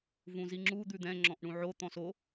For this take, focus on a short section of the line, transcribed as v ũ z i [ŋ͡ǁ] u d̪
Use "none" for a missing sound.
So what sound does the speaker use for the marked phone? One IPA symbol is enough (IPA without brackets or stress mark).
ŋ͡ǁ